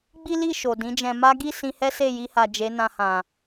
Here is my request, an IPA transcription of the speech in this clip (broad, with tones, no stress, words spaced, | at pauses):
ɡ͡bi˦li˦˨ ʃo˨dĩ˨˦d͡ʒɛ̃˧ ma˦ ɡi˦˨ sĩ˧hɛ˦ se˦˨ji˧ha˨ d͡ʒe˨˦nã˧hã˨